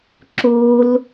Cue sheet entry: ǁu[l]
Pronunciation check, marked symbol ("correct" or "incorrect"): correct